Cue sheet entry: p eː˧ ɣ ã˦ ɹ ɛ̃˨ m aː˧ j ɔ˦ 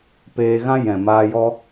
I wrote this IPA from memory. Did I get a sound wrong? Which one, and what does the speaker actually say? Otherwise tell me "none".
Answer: ɹ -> j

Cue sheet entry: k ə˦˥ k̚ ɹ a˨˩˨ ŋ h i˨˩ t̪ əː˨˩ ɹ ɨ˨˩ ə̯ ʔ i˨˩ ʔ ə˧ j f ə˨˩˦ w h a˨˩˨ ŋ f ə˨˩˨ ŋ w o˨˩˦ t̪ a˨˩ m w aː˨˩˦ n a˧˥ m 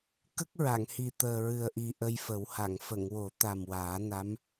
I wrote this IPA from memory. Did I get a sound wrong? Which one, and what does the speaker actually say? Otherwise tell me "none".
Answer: none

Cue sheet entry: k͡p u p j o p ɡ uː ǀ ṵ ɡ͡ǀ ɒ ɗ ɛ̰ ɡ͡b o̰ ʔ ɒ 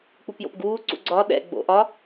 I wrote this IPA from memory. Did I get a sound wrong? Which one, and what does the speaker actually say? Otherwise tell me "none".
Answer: o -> o̰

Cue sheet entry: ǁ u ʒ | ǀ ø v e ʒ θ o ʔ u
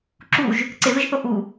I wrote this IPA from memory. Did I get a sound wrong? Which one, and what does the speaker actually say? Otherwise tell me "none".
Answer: ø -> e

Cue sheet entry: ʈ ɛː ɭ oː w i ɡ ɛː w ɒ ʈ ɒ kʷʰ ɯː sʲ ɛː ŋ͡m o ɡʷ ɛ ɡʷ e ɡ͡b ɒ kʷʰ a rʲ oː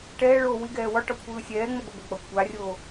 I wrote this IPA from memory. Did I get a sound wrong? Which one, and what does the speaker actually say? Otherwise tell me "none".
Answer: none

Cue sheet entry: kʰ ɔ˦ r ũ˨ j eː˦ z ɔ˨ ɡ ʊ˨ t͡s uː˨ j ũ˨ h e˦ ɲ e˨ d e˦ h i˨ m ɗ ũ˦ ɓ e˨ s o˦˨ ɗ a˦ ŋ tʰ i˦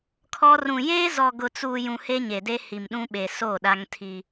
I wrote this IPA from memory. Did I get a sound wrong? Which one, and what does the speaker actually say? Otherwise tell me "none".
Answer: none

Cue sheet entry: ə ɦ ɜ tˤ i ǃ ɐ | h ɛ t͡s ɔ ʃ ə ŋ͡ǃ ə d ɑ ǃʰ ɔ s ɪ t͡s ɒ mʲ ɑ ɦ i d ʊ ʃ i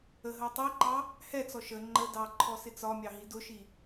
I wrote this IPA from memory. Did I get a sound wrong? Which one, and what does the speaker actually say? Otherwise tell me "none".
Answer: ɐ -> ɑ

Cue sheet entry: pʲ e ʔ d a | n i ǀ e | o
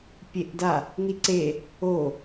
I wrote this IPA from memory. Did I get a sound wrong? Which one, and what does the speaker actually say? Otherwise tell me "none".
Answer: none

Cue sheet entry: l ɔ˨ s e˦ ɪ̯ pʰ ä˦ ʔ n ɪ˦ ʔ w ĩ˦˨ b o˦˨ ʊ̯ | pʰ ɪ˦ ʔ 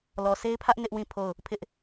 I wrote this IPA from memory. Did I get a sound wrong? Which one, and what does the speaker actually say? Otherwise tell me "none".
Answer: b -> pʰ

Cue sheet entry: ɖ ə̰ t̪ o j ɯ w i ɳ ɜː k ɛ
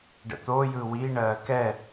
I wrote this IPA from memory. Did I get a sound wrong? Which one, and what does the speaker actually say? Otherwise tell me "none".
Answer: none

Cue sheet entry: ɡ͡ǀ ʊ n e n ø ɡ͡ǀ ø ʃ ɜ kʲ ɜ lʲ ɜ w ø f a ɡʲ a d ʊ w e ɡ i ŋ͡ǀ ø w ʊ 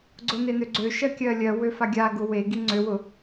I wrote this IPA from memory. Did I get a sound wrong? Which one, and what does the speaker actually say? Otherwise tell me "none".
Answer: d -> ɡ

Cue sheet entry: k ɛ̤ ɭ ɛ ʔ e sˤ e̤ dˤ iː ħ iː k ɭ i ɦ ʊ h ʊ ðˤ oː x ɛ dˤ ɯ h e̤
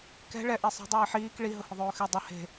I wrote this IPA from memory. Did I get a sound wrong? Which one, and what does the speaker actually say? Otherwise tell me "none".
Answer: ɯ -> ʊ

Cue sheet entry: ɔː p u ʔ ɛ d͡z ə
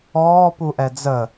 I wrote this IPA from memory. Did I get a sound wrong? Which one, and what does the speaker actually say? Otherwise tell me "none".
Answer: none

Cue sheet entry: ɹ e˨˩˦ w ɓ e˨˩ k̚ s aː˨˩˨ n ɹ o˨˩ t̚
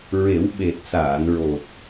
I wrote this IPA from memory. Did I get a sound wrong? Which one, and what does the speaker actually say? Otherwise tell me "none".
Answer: k̚ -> t̚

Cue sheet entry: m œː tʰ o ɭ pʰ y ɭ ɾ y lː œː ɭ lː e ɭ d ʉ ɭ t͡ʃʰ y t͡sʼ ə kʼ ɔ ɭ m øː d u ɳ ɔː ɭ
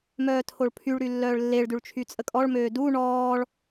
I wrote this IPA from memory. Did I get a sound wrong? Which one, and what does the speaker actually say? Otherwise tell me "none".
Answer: none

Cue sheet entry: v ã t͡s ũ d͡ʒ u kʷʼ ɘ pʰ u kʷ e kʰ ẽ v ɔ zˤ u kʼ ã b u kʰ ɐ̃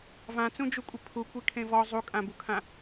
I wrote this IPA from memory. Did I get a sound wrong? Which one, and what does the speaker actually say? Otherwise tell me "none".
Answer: ɐ̃ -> ã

